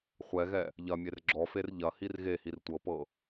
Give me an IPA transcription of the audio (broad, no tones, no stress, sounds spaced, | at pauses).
χʷ ɛ ɣ ɛ | ʎ ɐ mʲ e r ɡ͡ǁ ɔ f e r ʎ ɐ h i r ɣ e h i r tʷ ɤ p ɤ